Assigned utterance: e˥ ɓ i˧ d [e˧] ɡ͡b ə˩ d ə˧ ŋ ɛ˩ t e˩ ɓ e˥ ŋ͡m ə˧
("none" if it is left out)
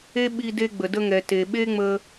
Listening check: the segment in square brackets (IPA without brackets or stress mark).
e˧